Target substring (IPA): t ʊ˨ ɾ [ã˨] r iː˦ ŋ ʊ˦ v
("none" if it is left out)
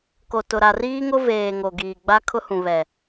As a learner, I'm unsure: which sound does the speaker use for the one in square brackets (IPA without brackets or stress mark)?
a˨